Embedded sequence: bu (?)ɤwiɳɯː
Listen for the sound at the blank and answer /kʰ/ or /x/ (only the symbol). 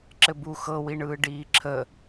x